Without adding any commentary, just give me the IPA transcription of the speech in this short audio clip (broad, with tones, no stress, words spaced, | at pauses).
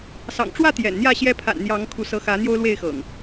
sɑ̰˨˩ŋʈ͡ʂwä˥˨ t̪jɛ̰˨˩nn̪jä˥˨ɕjɛ˦ pʰa̰˨˩nn̪jɑ˨˦ŋ kʰu˨˦sɤ˨˦ xä˨˦ n̪jo˦ʊ̯lwe˥˨ɪ̯xɤ̰˨˩ŋ